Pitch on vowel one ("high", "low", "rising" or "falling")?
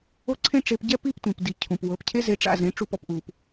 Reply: high